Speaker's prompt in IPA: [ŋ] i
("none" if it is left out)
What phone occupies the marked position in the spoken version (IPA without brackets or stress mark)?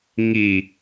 ŋ